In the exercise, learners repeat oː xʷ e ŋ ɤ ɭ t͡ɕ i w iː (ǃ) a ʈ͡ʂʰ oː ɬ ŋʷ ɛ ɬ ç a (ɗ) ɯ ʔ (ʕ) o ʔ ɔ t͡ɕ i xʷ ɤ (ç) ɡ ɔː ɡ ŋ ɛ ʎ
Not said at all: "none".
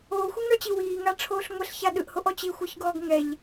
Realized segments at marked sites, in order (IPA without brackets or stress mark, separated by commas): ŋ, ɗ, h, ç